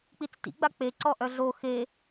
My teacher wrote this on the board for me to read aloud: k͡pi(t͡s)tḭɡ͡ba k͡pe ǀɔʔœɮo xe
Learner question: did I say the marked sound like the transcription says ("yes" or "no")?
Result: yes